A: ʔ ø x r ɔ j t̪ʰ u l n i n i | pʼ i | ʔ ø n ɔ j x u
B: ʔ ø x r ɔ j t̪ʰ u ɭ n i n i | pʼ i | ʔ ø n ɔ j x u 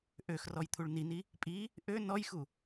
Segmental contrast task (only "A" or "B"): B